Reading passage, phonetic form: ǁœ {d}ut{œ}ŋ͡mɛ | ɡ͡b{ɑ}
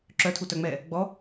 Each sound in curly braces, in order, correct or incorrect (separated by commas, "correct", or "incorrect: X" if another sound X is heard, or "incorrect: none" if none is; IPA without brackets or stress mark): incorrect: tʰ, correct, incorrect: ɔ